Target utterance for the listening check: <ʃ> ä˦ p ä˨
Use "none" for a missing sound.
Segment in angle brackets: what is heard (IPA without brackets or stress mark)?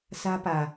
s